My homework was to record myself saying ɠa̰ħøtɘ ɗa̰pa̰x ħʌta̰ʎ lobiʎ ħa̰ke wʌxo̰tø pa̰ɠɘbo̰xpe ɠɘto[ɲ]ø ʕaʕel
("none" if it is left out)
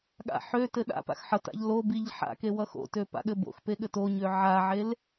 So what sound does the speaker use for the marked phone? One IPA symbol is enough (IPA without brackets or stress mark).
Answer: ɲ